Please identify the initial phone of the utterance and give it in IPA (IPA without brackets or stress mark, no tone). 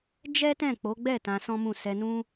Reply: d͡ʒ